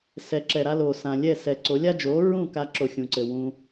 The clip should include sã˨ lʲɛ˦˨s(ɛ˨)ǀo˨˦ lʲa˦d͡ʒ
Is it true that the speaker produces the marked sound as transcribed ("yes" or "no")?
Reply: yes